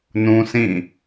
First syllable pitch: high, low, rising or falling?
high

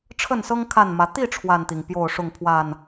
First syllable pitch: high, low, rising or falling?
falling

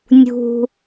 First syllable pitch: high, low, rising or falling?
low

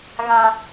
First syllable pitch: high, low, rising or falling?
low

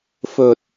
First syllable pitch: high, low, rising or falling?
low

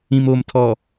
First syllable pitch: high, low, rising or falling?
low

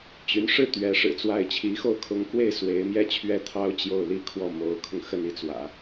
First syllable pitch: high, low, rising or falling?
rising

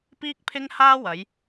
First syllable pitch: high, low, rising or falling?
high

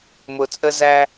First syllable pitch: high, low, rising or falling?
low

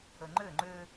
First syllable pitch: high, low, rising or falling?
low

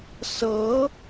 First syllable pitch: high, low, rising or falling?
rising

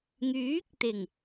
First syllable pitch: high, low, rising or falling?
rising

